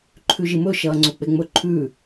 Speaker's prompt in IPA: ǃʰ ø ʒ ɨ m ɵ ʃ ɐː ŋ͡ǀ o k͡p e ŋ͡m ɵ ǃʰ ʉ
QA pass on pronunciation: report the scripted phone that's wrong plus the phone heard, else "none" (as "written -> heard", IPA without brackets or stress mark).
ø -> ʉ